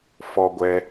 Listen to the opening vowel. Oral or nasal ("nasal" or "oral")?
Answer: oral